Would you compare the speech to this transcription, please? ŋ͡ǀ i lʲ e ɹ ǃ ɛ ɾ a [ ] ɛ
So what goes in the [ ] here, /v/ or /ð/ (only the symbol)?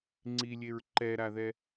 ð